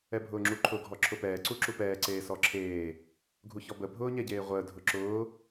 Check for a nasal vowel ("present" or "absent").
absent